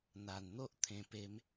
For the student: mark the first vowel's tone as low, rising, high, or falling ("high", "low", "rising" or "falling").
low